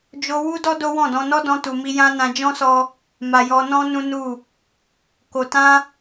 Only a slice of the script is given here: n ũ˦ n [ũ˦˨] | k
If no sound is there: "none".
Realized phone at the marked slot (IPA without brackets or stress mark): u˦˨